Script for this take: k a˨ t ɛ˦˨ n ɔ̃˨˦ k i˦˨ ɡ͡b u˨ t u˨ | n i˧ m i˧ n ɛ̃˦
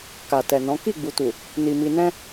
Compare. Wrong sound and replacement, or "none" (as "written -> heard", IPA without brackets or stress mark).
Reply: ɛ˦˨ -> ɛ˨